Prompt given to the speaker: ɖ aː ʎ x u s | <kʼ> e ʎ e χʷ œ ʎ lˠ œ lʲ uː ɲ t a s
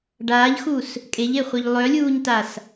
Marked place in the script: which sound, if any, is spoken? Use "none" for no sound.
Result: kʼ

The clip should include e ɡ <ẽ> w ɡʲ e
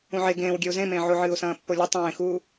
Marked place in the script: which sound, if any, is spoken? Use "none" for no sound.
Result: ẽː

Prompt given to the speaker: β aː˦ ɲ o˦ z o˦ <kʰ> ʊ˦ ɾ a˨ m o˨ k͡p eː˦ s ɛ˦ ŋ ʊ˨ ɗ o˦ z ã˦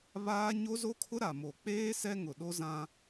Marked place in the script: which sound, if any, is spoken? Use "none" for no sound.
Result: kʰ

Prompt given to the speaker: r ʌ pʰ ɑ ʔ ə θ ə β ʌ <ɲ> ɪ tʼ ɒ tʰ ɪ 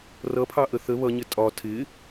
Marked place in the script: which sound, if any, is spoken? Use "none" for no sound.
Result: ɲ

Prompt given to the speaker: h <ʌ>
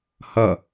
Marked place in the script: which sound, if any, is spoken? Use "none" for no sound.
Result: ʌ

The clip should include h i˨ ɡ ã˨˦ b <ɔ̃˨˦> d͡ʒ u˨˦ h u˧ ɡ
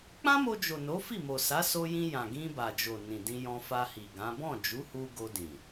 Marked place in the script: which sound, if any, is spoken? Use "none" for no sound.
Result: ɔ̃˦˨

